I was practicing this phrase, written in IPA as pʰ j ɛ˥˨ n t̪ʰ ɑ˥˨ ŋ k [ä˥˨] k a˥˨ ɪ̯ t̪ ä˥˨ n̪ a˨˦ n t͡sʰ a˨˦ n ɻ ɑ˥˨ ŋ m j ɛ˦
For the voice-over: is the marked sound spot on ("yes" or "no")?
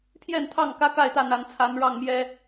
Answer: no